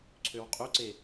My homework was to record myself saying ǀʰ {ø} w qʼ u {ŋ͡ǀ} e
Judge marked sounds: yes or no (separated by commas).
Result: yes, no